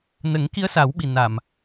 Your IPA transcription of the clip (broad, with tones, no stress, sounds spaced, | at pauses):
n ə˨˩˦ ŋ k i˧˥ ə̯ s a˨˩˦ w ɓ i˨˩ n a˨˩˨ m